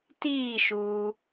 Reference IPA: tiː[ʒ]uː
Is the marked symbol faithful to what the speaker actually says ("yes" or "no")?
no